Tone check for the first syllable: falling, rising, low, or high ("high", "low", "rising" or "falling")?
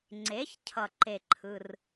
rising